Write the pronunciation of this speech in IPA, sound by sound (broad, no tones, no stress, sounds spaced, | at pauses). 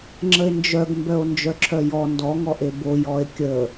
ŋ͡ǁ ə e̯ n d͡ʒ œ ɡ m b œ o̯ n d͡ʒ œ ǁʰ œ j ɔ n d ɔ ŋ ɔ ʔ e b o j ɔ e̯ kʲ ə